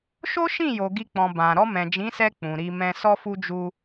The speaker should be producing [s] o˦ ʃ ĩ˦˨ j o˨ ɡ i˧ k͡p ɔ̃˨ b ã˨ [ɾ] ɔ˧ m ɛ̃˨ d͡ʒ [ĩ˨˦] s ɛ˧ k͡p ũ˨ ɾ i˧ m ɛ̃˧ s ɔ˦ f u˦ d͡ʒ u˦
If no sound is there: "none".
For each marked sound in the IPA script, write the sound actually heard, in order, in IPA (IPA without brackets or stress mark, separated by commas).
ʃ, ɾ, ĩ˨˦